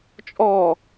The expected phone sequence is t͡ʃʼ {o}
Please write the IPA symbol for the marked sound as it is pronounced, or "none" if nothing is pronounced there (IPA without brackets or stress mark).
ɔ